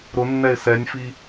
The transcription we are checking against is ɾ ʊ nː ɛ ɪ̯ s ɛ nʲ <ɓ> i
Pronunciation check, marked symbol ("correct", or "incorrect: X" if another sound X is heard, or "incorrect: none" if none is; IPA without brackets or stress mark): incorrect: f